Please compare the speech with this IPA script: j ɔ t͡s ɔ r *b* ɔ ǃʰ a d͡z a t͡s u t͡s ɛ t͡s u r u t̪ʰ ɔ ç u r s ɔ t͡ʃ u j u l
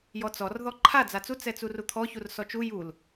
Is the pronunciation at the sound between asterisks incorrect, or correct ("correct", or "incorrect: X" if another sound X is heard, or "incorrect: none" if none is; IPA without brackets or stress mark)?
incorrect: ð